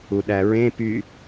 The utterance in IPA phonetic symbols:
u ɗ æ ɹ ẽ p y

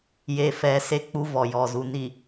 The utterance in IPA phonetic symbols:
j e˨ f ɛ˨ s e˦ k͡p u˦ v ɔ˨ j ɔ˨ z u˨ n i˨

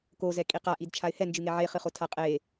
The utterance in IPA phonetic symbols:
k o z ɛ kʼ i q a ʔ i d t͡ʃʰ a ɪ̯ h ɛ n d͡ʒ ɨ ŋ e ʕ e χ ɨ χ o tʰ a qʼ e

